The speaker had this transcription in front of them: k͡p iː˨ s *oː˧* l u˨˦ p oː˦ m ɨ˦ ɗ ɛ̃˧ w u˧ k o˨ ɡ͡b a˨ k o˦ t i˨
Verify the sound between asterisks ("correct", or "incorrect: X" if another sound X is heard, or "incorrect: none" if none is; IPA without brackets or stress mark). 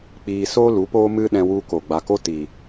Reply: incorrect: oː˦